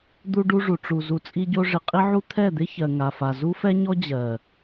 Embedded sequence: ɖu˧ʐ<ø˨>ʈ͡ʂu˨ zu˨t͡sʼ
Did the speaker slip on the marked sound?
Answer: yes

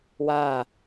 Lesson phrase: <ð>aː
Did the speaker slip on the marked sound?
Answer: yes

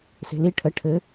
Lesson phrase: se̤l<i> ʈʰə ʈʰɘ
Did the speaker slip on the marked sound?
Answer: no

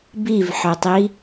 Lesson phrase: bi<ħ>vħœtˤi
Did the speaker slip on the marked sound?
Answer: yes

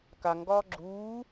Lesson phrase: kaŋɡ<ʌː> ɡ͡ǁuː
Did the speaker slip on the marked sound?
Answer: yes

